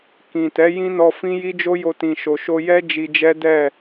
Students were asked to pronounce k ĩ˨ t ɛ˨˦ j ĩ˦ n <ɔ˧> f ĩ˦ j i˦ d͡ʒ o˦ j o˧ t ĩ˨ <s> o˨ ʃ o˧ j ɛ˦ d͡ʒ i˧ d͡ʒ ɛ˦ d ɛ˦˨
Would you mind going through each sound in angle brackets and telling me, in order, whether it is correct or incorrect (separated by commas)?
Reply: correct, incorrect